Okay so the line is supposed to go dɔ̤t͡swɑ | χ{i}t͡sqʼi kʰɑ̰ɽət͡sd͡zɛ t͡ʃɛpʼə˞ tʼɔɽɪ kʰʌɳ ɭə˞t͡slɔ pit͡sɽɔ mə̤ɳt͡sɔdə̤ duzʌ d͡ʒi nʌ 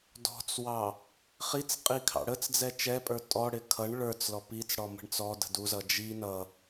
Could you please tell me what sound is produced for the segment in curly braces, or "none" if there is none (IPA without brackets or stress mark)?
i